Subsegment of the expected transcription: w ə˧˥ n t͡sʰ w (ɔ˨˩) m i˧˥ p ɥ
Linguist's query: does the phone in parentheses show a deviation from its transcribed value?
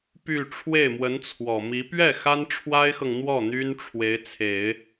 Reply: no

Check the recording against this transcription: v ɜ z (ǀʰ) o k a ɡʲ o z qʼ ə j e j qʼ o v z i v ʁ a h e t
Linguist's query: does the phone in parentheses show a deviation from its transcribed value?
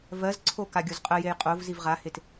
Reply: no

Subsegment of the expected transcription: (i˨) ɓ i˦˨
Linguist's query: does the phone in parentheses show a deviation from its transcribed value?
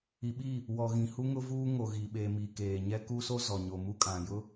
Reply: no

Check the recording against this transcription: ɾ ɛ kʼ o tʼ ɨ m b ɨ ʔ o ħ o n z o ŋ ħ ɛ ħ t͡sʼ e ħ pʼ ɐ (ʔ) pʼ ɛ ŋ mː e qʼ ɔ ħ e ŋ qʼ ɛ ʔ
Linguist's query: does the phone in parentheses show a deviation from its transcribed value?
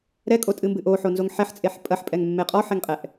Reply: yes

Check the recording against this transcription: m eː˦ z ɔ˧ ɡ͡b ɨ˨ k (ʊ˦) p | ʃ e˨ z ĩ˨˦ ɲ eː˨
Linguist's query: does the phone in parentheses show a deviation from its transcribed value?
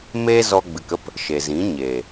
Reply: yes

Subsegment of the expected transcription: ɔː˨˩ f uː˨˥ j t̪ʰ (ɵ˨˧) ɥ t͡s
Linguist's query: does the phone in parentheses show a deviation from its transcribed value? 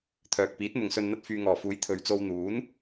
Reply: no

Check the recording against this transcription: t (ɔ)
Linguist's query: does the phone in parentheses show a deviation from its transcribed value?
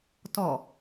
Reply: no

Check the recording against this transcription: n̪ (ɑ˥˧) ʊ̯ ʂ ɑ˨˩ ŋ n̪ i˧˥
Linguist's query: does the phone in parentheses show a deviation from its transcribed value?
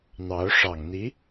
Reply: yes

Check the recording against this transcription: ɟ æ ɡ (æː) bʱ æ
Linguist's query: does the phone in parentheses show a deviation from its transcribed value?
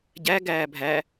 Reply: no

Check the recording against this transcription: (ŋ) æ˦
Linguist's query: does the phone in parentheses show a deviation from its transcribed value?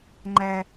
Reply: yes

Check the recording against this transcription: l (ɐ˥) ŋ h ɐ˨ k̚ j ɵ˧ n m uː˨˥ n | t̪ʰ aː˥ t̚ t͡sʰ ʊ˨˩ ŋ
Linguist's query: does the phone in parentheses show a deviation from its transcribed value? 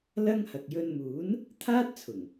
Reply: no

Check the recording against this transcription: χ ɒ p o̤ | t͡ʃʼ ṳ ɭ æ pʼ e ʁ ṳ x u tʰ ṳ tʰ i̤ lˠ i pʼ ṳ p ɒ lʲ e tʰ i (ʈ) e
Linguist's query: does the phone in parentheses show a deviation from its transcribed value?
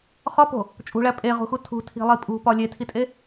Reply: yes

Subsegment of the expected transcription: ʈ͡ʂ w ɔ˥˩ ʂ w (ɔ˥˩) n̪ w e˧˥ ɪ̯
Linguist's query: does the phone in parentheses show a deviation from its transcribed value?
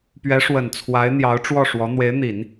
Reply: yes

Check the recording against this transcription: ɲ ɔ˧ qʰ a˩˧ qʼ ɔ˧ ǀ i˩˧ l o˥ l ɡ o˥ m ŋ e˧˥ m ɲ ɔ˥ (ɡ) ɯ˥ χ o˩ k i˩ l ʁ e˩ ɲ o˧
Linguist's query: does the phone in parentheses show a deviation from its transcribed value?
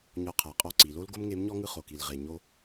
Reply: yes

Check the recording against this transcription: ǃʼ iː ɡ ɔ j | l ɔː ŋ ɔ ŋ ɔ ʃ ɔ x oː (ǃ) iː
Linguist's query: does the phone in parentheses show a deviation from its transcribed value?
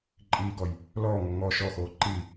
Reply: no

